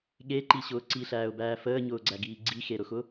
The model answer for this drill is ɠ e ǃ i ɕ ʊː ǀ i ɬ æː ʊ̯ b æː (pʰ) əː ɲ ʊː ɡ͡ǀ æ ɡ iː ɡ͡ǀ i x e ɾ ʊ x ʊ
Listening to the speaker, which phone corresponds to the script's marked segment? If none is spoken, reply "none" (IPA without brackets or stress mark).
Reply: f